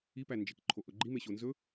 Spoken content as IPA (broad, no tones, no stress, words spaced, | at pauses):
ipænd͡ʒek ǃʰoʔɵɡ͡ǃi meɕonzɵ